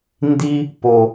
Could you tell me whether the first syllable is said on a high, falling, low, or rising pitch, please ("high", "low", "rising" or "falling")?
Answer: high